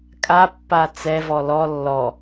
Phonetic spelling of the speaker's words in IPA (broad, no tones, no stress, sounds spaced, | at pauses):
kʼ a pː a t͡s ɛ v ɔ l ɔ lː ɔ